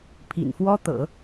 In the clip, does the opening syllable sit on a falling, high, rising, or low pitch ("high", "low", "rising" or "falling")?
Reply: low